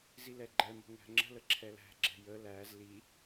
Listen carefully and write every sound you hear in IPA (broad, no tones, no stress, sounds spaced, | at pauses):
z i l ɛ ɡ͡ǃ ɛ m ə̤ ŋ æ̤ ŋ͡ǁ ə̤ l ə ǁʰ ɛ l æ̤ ɡ͡ǁ ɛ̤ j ə l æ z l i